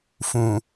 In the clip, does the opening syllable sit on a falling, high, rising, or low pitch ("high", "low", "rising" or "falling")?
low